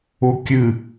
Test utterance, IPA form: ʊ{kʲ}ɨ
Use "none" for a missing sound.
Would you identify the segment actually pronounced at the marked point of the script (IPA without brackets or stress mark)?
kʲ